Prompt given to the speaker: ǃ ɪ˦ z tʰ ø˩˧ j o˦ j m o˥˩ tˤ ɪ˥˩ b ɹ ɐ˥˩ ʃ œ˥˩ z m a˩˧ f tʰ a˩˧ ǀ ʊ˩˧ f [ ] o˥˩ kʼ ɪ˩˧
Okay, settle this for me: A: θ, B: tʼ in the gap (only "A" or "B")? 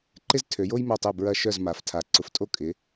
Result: B